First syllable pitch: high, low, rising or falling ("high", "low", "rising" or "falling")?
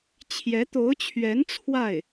rising